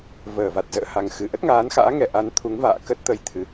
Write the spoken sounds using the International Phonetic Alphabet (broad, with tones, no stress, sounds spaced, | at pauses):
v əː˧˩ v a˨˩ t̚ z ə̰ː˧˨ h a˨˩ ŋ x ɨ˨˩ ʔ ə˦˥ t̚ ŋ aː˨˦ n x a̰ː˧˥ ŋ ɛ˨˩ ʔ a˨˦ n t̪ʰ u˨˦ ŋ v a̰ː˧˨ k ə˦˥ t̚ t̪ ə˧ j t̪ʰ ɨ˨˩